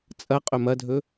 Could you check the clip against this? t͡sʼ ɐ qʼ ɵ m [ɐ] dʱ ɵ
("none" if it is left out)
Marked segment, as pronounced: ɐ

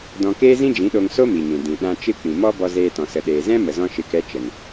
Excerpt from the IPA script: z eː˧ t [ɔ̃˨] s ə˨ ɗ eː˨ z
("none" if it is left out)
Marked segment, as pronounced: ɔ̃˨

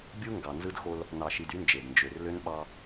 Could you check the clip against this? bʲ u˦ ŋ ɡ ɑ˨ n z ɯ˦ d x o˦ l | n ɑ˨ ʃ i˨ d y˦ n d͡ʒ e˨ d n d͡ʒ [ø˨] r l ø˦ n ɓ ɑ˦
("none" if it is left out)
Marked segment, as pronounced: ø˨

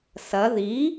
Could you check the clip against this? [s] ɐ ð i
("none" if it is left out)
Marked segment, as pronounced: s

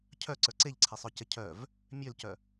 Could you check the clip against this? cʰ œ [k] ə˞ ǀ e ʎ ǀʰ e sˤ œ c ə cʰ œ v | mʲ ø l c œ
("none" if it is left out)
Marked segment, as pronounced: ǀ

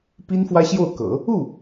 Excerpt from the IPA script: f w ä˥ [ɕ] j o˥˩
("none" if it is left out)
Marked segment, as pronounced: ɕ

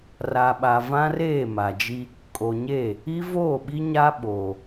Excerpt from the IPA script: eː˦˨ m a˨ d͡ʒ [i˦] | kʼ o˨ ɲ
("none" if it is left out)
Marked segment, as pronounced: i˦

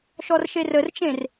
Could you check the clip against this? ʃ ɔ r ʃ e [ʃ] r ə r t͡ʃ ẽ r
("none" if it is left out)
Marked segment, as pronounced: none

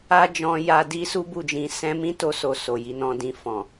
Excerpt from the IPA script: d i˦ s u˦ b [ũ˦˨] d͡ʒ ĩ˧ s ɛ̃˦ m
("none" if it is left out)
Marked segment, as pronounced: u˦˨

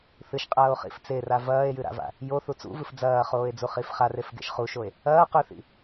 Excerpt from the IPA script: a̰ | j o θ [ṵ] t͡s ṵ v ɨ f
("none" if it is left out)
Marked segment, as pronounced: u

